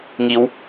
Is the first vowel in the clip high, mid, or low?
high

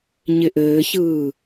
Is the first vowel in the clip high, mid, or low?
high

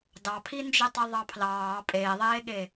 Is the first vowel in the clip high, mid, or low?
low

